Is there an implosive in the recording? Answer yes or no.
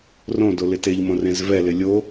no